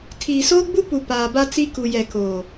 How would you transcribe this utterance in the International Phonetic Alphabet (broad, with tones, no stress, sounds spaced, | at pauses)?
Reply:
tʰ iː˨ s oː˦ ɡ͡b u˦ p u˨ p aː˨ b a˦ t͡s i˦ k u˨ j ɛ˨ k oː˨